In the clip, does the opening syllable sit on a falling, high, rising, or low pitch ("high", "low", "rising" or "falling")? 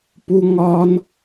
low